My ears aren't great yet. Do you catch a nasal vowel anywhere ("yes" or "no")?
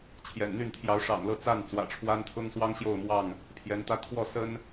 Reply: no